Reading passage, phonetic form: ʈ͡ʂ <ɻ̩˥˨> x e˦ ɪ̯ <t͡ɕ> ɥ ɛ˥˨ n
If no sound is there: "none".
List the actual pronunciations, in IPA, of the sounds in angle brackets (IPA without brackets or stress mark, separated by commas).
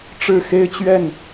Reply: ɻ̩˥˨, t͡ɕ